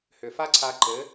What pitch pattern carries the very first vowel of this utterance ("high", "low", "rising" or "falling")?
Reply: low